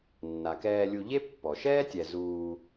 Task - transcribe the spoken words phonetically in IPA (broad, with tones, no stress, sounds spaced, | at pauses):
nː a˩ k ɛː˨ lʲ u˨ ʎ e˦ pː ɔ˩ ʃ ɛː˥ tʲ ɛ˨ z uː˨